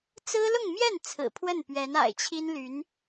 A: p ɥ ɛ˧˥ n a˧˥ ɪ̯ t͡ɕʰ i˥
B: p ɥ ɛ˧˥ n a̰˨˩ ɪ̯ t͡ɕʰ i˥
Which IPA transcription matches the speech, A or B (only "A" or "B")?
B